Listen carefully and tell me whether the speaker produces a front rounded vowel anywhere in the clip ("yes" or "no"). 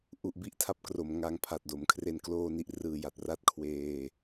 no